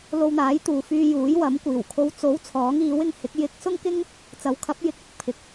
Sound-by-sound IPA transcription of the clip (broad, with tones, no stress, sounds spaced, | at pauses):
l o˧ w n̪ aː˨˥ j t̪ uː˨ f yː˧ j uː˨˥ j w ɐ˨˥ m kʷ iː˨˩ w kʰ o˨˧ w t͡s o˨˥ w t͡sʰ ɔː˨˥ ŋ iː˨˥ w ɪ˧ ŋ h ɪ˨˥ k̚ j ɪ˧ k̚ s ʊ˥ ŋ k ɪ˥ ŋ | t͡s ɐ˨˥ w kʰ ɐ˨˥ p̚ j ɪ˨˥ k̚ ɪ˧ k̚ pʰ ɪ˨ k̚